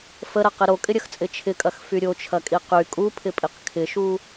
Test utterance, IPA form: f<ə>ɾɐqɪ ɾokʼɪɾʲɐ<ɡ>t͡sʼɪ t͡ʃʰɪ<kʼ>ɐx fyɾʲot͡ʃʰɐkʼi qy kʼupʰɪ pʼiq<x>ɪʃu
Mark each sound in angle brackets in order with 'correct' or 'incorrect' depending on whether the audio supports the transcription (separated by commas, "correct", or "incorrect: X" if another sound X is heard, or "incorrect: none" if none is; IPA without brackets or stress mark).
correct, incorrect: x, correct, incorrect: kʰ